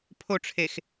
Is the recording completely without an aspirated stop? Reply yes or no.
no